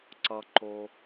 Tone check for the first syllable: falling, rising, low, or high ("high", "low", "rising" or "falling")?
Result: low